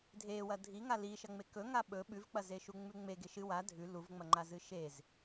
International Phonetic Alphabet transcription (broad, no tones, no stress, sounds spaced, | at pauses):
dʱ e w ɐ dʱ i ŋ a l i ʃ ɐ ŋ͡m e k ɵ ŋ a ɓ ɵ ɓ ʉ v k͡p ɐ z e ʃ u ŋ͡m ʉ ŋ͡m e ɡ e ʃ ɨ w a dʱ ʉ l u v ŋ͡m ɐ ŋ͡ǃ a z ɨ ʃ e z